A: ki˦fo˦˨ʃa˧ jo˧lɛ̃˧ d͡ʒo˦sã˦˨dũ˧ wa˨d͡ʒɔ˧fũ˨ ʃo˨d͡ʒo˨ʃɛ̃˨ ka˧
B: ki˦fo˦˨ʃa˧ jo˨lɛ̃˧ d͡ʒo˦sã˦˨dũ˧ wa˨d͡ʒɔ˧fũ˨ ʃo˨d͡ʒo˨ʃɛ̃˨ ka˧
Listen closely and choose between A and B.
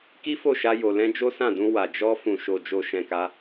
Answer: B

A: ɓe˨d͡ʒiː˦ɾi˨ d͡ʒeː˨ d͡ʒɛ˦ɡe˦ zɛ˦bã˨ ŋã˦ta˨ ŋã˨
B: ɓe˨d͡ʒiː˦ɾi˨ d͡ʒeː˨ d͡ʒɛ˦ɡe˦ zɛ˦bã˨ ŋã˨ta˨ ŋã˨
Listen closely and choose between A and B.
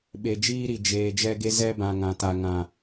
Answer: B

